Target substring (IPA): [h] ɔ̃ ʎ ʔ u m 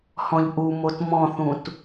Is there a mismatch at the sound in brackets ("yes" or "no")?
no